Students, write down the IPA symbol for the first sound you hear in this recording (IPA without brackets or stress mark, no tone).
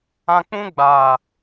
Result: ã